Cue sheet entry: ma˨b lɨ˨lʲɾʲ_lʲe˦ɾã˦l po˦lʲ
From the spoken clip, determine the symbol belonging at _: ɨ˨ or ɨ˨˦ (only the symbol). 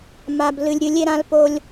ɨ˨˦